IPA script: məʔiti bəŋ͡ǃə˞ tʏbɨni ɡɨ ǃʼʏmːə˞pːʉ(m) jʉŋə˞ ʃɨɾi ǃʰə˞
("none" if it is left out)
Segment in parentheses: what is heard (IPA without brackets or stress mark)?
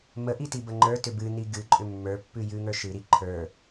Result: none